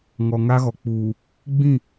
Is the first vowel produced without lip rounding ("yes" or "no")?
no